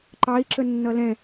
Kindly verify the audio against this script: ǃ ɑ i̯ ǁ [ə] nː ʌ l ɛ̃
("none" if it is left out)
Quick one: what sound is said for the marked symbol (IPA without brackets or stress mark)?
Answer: ə